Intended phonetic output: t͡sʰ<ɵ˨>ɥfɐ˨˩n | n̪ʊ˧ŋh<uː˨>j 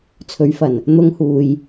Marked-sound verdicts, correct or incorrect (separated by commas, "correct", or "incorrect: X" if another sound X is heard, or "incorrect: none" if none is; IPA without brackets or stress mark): incorrect: ɵ˨˥, correct